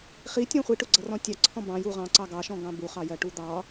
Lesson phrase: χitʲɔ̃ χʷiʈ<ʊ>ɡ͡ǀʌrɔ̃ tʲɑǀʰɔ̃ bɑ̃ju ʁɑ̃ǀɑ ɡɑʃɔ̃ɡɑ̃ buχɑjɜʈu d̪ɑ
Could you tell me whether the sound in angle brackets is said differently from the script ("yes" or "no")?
no